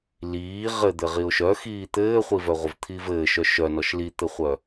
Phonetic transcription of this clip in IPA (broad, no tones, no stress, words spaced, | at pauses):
liː ʁɘd̪ɘ ʁiʊ̯ʃœxiː t̪ɘːχʷivœʁʷəv t̪ʰiːvɘːʃœ ʃœnɔʃ lit̪ɘχʷœ